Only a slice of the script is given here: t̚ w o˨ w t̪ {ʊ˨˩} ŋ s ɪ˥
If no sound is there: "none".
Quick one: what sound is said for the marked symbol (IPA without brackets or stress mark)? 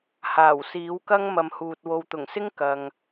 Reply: ʊ˨˩